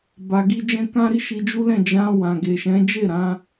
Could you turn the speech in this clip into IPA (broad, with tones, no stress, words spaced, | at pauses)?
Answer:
ba˧ɡi˦ d͡ʒɛ̃˦ kã˦ɾi˦ʃi˧ d͡ʒu˦lɛ̃˦˨ d͡ʒã˧ wã˨ ɡe˨ʃɛ̃˨˦d͡ʒe˦˨ ɾã˧